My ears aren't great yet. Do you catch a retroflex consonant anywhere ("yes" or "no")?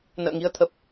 no